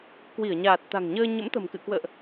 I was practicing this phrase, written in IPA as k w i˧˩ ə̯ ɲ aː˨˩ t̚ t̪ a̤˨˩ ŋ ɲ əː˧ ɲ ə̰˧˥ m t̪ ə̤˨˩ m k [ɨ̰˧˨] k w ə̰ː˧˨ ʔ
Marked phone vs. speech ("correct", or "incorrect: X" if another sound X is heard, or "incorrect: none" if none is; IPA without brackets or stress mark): correct